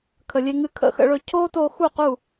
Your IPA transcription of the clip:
kʰə˩lʲe˧ŋɨ˧kʰə̰˧ xə̰˧ɭɵ˧ cʰoː˥toː˧ xu˥˩qu˥˩

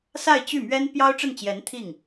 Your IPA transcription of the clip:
sa˥˧ɪ̯t͡ɕy˥˩mɥɛ˥n pjɑ˥ʊ̯ʈ͡ʂə˥˩nt͡ɕjɛ˧˥n t̪ʰi˥˩ŋ

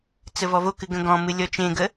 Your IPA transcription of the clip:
t͡səvɔvokɨ ɡə̃ɡɔ̃mɨ lʲɔt͡ʃẽɡə

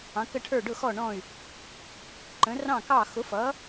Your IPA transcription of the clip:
ɑ̃˨˥kə˥˨ʈʰə˞˥˨ ɖʊ˥˨xɔ˥˨ɳɔ̃˥˨y̯ | ǃə̃˨˥rɑ̃˥˨kɑ˥˨ xʊ˨˥fʌ˨˥

